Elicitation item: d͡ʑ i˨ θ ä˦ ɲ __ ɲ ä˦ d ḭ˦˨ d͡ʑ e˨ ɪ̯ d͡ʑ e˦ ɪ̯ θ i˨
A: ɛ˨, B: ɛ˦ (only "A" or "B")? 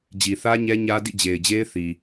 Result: B